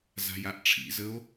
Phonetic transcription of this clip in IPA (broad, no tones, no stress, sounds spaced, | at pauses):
z a̤ j a ʔ ʈ͡ʂʰ ḭ z ə o̯